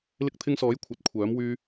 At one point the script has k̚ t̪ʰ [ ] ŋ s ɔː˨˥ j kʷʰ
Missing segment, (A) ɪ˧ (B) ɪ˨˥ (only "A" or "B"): A